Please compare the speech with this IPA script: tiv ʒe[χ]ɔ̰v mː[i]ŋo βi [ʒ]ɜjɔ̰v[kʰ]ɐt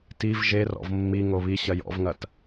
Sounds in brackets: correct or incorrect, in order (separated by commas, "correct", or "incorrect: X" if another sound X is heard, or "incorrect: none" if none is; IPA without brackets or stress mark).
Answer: incorrect: r, correct, incorrect: ɕ, incorrect: ŋ